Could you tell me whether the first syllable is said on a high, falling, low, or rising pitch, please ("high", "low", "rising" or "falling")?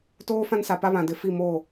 high